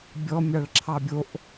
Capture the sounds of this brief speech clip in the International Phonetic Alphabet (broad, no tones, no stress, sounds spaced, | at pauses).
bʲ ɔ mʲ ɑ ɭ ǁʰ ɑ bʲ o ʔ